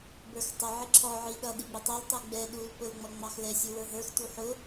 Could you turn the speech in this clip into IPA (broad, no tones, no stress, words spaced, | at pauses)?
bə˞xtˤɪʕɪ ǁʰɔʕi ɗʌ ɗiɡ͡bɪtˤɛltˤu ɡ͡bɛ ɗul pʊlŋ͡mʌ ŋ͡mɑxlɛsʲu wə˞ɦə˞xtu ħʊ